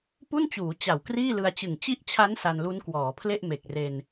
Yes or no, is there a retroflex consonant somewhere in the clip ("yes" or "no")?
no